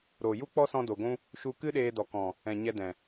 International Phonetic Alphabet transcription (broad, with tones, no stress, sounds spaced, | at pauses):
ɾ oː˨ j u˦ k͡p ɔ˦ s ɔ̃˧ d o˨ ɡʷ ũ˦ | ʃ u˧ k ɨ˦ ɗ eː˧ d ɔ˨ k ɔ̃˨ | ɛ̃˨ ɲ ɛ˧ d ɛ̃˨